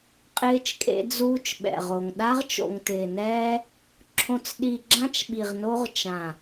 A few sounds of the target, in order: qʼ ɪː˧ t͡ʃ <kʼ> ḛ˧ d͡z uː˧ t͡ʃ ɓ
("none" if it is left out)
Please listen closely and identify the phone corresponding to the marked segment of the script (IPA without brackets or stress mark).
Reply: kʼ